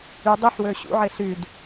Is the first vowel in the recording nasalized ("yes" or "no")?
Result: no